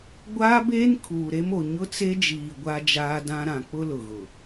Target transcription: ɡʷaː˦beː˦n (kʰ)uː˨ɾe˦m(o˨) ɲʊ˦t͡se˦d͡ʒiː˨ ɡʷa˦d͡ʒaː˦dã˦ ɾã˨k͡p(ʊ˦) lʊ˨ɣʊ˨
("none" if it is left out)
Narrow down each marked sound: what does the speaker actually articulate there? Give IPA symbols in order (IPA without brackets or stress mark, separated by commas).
kʰ, o˨, ʊ˦